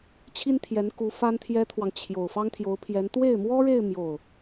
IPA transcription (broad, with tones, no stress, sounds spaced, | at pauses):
t͡ɕʰ i˥ n t̪ʰ j ɛ˧˥ n k u˧˥ f a˥ n t̪ʰ j ɛ˥ t̪ʰ w ɑ˨ ŋ t͡ɕʰ j o˨˩ ʊ̯ f ɑ˥ ŋ t̪ʰ j o˧˥ ʊ̯ pʰ j ɛ˧˥ n t̪ w e˥˩ ɪ̯ m w ɔ˥ ɻ e˥˧ ɪ̯ m j o˥˩ ʊ̯